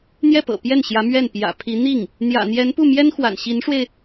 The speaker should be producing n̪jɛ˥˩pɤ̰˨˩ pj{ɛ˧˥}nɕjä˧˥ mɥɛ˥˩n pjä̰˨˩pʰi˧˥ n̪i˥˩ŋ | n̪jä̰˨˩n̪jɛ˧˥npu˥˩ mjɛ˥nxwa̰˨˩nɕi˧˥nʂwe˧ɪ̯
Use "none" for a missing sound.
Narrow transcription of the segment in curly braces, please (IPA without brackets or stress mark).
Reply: ɛ˥˩